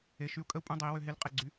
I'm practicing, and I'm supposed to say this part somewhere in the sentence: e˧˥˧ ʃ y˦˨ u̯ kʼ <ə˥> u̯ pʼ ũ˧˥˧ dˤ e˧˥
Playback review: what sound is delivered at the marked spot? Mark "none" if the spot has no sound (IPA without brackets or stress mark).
ə˥